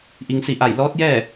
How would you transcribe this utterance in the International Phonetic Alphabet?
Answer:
ʔ i˩ ŋ s i˧˩ ʔ a˧˩ j l ɔː˧˥ t̚ j ɛː˥˨

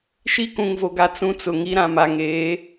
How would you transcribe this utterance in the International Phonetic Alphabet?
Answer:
ʃ i˦ k ũ˨ ŋ v o˨ ɡ a˨ t͡s ũ˦ t͡s ʊ˨ ŋ i˦ ɾ ã˨ m a˨ ŋ eː˨˦

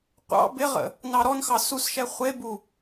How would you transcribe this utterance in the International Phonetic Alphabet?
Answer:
qʷ ɑ̰ b ɪ ʁ ə̰ | n ɑ ɾ ɔ n x ɑ s u s ʃ ɛ χʷ e b u

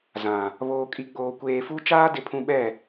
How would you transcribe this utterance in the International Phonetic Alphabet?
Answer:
z ã˨ | β oː˨ kʼ i˨ ɡ͡b oː˨ kʷ eː˨ f u˦ t͡ʃ aː˦ d ɪ˨ pʰ ũ˨ ɓ ɛ˦˨

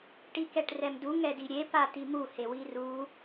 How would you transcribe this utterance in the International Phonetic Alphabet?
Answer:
ʈ i k ɛ ʈ r ɛ m d u ŋ ɛ d i ɾʲ e p a t i m u h e w i r u

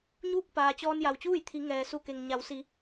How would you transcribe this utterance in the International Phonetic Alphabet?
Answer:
ɲ uː˥˨ k̚ p aː˩ t͡ɕ ɔː˧ n j a˩ w t͡ɕ uː˥˨ j t̪ʰ i˩˧ ŋ ɛː˩ s u˧˩ k e˩ ŋ ɲ a˩˧ w s i˩˧

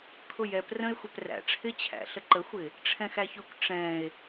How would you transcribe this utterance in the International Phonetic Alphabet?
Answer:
kʰ ʊ j ɛ p r ə̃ e̯ xʷ ɛ p r æ̰ ʈ͡ʂʰ ɪ t͡ɕʰ æ̰ ɬ ə ǃ ə xʷ ɪ | ʈ͡ʂʰ ɛ̃ x æ ç ʊ kʷ ʈ͡ʂ ɛ̃ e̯

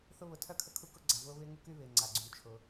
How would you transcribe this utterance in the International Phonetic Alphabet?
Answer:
θ ʊ˦ β ʊ˨ tʰ œ˥ kʰ ə˦ kʰ u˦ k ʊ˥ ɡ͡ǀ a˨ v ʊː˦ β ɪː˦ ŋ u˦ k y˦ β ɪː˨ ŋ͡ǀ a˩ ɡ͡ǀ yː˨ t͡ʃʰ ʊː˨

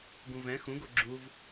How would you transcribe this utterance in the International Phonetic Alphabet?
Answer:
ɡ ũ v ɛ̃ x ũ ɡ o ɡ͡ǁ u v

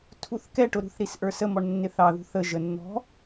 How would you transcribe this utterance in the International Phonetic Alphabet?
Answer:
tʰ u θ k ɛ ʈ ʊ ɾ ṳ θ ɾ i s ʔ ə˞ s ə m ɔ ɳ nː ɪ θ ɑ ð ṳ θ ə ʒ ə nː ɔ̤

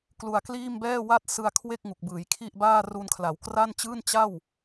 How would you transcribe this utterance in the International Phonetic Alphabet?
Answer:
k l u˧ a̯ k l iː˥˩ m b ɛː˥˩ w a˥˩ t̚ s ɯ˧ a̯ kʰ w e˥˩ k̚ ŋ u˨˩ k̚ b ɯː˩˦ j kʰ i˥˩ ʔ b aː˥˩ r u˧ n kʰ l a˩˦ w k r a˥˩ n t͡ɕ ɯː˥˩ n t͡ɕ a˥˩ w

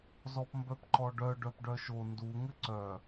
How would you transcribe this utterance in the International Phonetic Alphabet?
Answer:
z ɔ p m b œ p ǃ ɔ ɖ œ ɖ œ p ɖ œ ʃ o n d u ŋ ɘ ǀ œ

